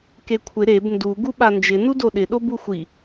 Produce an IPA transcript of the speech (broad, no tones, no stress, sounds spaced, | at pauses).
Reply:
k e kʷʰ ɪ ɾ e b n d u ɡ u ɓ a n d͡ʒ ɪ n u d o ɗ ɪ ɗ o b u xʷ i